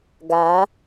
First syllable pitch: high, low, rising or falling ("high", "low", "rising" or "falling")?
rising